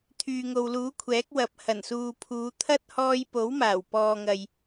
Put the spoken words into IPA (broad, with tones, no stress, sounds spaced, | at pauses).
t̪ʰ yː˨ ŋ o˨ w l uː˨˥ kʷʰ ɛː˨˥ k̚ w ɐ˨˥ p̚ h ɐ˨˩ n s uː˨ pʰ uː˨˧ t̪ʰ ɐ˥ t̚ h ɔː˧ j p o˨˥ w m aː˨˩ w p ɔː˨ ŋ ɐ˨ j